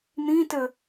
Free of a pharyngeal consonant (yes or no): yes